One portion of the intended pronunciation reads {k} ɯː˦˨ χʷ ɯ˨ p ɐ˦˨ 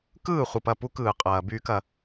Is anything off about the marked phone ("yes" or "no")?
no